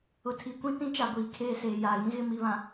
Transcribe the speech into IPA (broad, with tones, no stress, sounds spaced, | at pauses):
ʊ˨ tʰ i˨ kʷ ĩ˦ t ĩ˦ t͡ʃ a˨ ɡʷ iː˨ kʰ eː˦˨ s eː˨ j a˨ ɣ ĩ˦ ɣ ɪ˦˨ m i˦˨ β ã˨